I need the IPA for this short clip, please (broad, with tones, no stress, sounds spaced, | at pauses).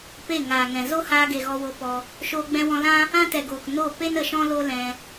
p e˦˨ ŋ aː˨ ŋ ɛ̃˨ z o˦ h aː˧ ɡ e˨ ɣ ɔ˧ w o˧ p ɔ˧ | ʃ oː˧ ɡ͡b ɛ̃˧ w ɔ̃˧ l ã˦ | ã˦ t ɛ˨ ɡ oː˨ k n o˦˨ p e˦ n ə˨ ʃ ɔ̃˦ l o˦ l ɛ̃˧